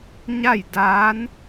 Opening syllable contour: falling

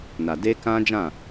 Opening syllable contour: low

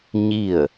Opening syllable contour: falling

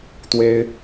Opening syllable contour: high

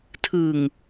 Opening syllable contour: low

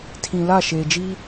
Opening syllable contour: low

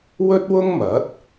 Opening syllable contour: high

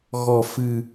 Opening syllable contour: low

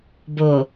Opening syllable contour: low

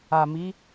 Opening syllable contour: low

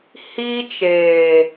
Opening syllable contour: high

